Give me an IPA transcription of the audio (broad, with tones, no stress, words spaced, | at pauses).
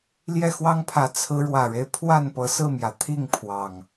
ljɛ˥˨xwɑ˦ŋpʰä˨˦ t͡sʰɹ̩˨˦ɻwä˨˩ɻe˦ɪ̯pʰwa˥˨n pɤ˨˦sɹ̩˥˨mjä˩ t̪ʰi˥˨ŋ pʰwɑ˨˩ŋ